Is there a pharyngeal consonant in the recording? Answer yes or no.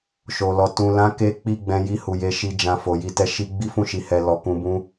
no